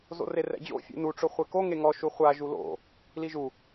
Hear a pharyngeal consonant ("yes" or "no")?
no